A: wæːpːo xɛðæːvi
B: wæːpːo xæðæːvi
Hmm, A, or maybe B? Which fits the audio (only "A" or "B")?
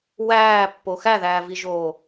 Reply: B